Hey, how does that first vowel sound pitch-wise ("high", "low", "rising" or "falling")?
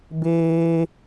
high